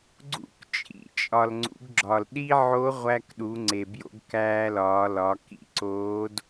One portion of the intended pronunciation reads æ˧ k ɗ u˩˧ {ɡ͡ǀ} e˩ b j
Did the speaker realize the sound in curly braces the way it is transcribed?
no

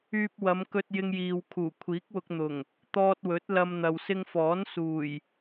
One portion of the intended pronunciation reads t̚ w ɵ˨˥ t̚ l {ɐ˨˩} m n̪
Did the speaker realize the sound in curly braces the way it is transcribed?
no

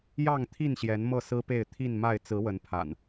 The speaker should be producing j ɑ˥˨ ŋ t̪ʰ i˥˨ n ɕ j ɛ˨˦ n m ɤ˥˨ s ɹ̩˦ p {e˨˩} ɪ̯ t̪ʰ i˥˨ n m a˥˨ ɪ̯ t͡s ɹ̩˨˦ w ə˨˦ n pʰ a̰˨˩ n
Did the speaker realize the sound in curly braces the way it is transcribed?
no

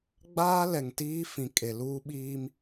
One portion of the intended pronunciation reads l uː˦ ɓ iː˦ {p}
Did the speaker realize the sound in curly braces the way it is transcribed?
no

